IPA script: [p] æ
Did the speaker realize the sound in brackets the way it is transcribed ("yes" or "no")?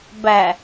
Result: no